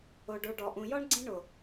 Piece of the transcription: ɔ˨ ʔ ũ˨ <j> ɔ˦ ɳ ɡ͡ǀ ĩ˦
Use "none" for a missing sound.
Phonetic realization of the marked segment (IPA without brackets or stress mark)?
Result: j